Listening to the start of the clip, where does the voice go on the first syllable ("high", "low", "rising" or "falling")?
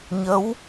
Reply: rising